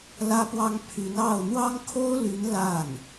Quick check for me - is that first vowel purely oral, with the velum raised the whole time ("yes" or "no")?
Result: yes